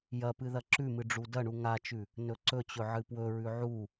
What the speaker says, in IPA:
jɐpɨ ðɐǁʉmɨ ɖ͡ʐudɐɳu ŋat͡ʃʉ | nɵǀɵt͡ɕɵ ʕɨpwɵɹʉ ʕu

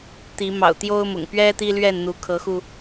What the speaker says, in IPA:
t̪i˨˦mɑ̰˨˩ʊ̯ t̪jo˦ʊ̯mʊ̰˨˩ŋ pɥɛ˦ t̪i˦lɥɛ˥˨nn̪u˨˦ kʰɤ˨˦xu˧

